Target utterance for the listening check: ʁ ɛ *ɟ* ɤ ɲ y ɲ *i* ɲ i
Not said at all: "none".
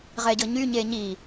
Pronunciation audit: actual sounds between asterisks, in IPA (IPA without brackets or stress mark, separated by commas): ɟ, e